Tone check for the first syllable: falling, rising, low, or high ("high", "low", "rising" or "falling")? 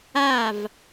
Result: falling